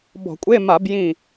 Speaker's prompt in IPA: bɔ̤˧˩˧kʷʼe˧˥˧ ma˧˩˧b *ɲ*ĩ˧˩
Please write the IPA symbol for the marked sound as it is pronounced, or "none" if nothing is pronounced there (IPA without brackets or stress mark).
j